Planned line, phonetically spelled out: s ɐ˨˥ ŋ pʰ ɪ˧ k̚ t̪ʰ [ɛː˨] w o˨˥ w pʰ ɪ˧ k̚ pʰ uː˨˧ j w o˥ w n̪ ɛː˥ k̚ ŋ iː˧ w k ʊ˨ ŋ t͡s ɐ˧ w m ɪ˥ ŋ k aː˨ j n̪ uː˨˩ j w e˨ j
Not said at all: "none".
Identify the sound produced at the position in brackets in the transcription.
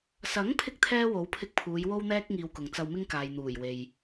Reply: ɛː˥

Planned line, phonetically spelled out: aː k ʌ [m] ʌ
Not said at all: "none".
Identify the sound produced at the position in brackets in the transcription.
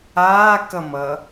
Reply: m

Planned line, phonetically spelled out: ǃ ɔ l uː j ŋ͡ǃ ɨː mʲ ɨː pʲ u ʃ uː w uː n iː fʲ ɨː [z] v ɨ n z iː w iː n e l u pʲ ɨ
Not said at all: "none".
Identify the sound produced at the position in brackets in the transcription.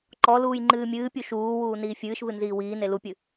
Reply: ʃ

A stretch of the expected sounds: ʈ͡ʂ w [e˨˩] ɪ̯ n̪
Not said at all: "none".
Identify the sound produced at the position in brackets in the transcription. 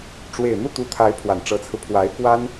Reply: e˨˩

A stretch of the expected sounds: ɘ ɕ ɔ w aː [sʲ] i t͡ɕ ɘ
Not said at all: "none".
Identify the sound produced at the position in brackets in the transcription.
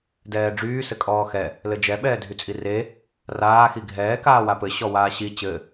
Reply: ɕ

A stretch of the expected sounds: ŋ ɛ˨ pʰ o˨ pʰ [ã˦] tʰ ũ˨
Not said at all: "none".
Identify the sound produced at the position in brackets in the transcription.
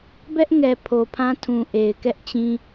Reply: ã˦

